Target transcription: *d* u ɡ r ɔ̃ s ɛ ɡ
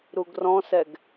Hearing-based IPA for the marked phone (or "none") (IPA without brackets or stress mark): ɾ